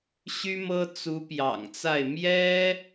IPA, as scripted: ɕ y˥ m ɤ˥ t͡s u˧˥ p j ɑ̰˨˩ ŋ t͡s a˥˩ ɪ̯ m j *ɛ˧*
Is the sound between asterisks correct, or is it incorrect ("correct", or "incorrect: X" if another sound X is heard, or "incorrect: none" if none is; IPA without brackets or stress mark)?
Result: incorrect: ɛ˥